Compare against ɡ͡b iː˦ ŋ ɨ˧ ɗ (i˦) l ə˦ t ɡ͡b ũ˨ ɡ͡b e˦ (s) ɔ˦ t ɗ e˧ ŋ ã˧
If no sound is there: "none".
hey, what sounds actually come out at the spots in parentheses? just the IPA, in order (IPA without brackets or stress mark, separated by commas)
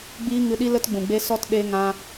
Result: i˦, s